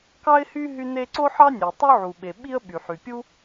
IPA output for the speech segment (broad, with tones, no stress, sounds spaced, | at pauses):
k ɑ˥ ɪ̯ h y˥ ɦ y˥ n e˥ ǀ o˥ ħ ɑ˥ nʲ ø˩ tˤ u˥ ʕ u˩ ɓ e˩ ɓ i˥ ə̯ ɓ y˩ ħ y˩ pʲ u˥